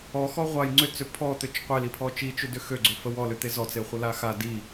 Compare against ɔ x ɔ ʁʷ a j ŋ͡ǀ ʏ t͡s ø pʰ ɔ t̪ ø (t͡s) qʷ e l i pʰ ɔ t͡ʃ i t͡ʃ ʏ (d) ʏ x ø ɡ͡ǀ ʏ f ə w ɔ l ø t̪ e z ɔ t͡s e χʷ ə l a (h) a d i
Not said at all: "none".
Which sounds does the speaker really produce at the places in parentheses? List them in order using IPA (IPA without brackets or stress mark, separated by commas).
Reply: t͡ʃ, d, x